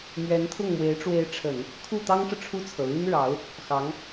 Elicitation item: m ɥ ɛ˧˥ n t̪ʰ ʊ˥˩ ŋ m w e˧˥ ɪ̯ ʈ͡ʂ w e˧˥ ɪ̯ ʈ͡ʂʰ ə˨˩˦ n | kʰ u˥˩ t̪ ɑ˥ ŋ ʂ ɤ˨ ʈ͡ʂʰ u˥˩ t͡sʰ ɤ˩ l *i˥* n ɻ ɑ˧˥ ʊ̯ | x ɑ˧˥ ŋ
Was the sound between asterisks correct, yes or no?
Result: no